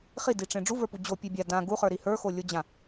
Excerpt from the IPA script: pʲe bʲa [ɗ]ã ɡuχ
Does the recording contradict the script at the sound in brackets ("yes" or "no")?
yes